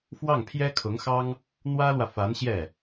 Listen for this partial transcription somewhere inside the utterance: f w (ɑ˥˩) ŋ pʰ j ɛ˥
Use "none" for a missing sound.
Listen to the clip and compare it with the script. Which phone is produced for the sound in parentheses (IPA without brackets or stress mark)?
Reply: ɑ˥˩